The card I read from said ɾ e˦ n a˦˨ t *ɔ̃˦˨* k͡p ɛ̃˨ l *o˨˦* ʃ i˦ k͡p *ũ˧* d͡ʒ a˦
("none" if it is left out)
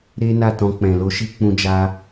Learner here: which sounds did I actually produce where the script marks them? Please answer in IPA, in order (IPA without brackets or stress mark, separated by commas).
ɔ̃˧, o˨˦, ũ˦